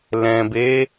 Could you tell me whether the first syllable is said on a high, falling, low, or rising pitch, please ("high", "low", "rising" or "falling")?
low